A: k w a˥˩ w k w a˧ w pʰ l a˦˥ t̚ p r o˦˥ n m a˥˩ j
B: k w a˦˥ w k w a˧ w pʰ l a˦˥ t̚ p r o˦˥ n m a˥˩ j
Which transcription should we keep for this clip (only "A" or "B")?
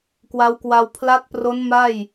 B